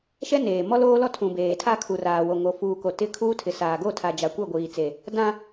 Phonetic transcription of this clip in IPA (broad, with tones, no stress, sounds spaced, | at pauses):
ʃ ɛ˦ n eː˨ m ɔ˦ l oː˦ l ɔ˦ tʰ ũ˨ b eː˨ tʰ a˦ kʰ u˨ r aː˨ w o˨ ŋ o˨ f uː˨ k o˨ t ɪ˦ kʰ uː˦ tʰ ɪ˨ s aː˨ ɡ o˦˨ tʰ a˨ d͡ʒ a˨ kʷ ɛ˦˨ ɡʷ iː˨ t͡s e˨ | d ã˦